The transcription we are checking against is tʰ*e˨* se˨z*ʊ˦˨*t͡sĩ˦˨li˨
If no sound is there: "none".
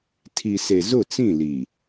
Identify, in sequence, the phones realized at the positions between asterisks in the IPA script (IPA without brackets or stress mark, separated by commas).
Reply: i˨, ʊ˦˨